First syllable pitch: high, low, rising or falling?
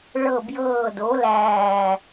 falling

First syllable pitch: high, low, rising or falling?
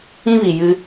high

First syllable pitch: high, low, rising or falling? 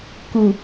low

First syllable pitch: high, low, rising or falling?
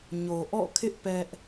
low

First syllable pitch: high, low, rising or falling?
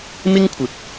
high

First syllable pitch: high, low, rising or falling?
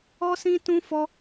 high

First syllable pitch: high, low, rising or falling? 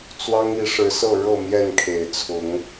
high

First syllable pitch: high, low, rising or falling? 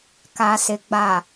low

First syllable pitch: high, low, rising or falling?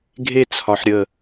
falling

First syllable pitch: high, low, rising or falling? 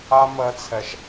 high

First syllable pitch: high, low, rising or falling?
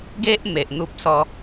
high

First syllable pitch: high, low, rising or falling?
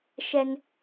high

